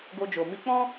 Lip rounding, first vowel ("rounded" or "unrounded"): rounded